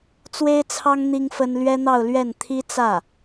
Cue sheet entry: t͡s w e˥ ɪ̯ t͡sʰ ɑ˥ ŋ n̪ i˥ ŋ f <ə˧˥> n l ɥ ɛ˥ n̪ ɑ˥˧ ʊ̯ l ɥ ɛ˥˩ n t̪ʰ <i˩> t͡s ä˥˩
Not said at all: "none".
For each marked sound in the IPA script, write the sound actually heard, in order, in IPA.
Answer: ə˥, i˥

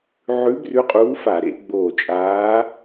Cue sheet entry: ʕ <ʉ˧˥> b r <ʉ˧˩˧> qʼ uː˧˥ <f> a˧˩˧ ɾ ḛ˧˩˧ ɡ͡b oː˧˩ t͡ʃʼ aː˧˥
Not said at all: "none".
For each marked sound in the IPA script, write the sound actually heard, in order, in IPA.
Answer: ʉ˧˥, ʉ˧˥, f

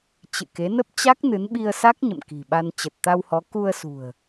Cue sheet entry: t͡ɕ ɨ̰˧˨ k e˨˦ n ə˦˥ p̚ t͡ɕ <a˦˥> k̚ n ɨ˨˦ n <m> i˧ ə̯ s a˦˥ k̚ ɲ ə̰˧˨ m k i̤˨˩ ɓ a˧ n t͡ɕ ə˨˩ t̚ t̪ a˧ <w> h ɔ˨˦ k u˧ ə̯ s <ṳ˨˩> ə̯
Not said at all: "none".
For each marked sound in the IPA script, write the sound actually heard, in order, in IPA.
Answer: a˦˥, ɓ, w, ṳ˨˩

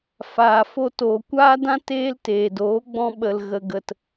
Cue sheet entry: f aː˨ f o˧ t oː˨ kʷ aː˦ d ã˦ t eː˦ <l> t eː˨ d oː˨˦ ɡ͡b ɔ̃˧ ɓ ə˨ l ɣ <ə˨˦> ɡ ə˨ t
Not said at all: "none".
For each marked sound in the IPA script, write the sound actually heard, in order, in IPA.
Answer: l, ə˨

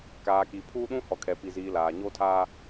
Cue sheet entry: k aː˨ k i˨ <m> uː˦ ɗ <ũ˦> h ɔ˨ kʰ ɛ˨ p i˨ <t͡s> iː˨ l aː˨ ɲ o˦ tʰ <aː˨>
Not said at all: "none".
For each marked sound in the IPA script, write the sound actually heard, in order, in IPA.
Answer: pʰ, ũ˦, z, aː˦

